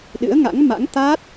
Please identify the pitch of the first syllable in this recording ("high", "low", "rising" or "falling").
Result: rising